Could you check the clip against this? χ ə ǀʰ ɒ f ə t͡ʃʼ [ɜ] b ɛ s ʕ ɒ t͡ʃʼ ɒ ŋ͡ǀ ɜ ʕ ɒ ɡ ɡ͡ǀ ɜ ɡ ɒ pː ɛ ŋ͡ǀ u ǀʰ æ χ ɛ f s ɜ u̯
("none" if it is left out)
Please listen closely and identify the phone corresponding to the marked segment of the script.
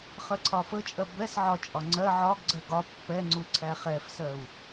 ɜ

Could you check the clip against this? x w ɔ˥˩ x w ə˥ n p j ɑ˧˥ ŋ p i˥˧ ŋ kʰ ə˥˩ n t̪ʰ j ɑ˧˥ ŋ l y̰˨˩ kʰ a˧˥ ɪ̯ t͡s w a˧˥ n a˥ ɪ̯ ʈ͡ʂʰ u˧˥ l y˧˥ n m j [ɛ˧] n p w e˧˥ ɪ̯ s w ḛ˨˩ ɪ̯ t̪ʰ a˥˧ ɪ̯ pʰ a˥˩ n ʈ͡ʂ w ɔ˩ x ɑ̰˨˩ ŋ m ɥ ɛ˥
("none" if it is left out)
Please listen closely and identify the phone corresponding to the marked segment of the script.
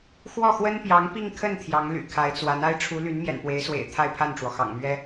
ɛ̰˨˩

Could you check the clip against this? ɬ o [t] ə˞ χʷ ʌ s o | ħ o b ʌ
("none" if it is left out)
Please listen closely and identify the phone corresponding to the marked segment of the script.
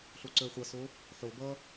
ǀ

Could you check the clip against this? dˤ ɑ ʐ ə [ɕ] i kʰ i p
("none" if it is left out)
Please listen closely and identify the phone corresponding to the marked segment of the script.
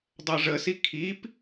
s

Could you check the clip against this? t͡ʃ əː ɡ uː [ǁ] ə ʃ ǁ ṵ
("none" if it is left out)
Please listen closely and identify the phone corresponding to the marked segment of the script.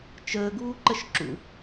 ǃ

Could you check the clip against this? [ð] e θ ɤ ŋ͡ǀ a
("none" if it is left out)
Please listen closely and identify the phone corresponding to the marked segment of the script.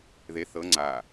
ð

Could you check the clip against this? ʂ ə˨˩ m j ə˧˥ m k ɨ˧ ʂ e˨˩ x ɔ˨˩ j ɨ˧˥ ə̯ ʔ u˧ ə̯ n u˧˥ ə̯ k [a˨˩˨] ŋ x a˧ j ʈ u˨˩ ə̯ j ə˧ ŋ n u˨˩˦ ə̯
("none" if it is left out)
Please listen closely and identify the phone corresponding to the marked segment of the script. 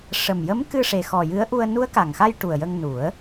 a˨˩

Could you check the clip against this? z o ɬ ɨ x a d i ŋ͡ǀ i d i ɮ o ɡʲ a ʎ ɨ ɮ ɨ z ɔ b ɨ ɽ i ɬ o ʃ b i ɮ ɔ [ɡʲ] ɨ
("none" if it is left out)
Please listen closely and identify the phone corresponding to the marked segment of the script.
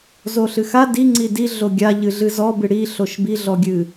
ɡʲ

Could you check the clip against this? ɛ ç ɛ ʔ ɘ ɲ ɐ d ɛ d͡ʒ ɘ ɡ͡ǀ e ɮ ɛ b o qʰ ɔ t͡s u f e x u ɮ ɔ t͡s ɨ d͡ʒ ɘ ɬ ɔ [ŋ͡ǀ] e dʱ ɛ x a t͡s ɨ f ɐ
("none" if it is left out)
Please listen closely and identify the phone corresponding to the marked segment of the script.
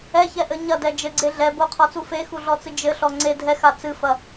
ŋ͡ǀ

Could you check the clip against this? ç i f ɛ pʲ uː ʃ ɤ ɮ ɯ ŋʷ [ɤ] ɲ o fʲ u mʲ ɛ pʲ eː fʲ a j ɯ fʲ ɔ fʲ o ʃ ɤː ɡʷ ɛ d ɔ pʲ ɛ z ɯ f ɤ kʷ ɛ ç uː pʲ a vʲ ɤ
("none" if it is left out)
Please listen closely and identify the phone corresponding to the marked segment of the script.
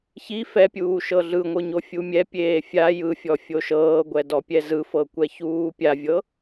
ɯ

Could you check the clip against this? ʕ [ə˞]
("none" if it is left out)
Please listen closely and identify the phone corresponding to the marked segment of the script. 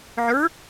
ə˞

